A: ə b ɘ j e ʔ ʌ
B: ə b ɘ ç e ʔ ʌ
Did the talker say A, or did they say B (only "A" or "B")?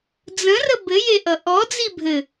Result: A